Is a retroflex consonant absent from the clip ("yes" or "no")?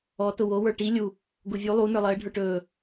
no